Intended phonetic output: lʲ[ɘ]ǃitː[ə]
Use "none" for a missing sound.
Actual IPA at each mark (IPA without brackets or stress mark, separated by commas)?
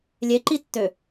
e, ø